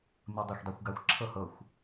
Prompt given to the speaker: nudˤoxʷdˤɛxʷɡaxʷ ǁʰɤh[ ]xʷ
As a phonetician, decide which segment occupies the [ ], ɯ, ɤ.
ɤ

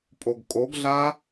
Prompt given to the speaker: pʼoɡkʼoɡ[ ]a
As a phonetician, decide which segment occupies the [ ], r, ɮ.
ɮ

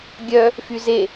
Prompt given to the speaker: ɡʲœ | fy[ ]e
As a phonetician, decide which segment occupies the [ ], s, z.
z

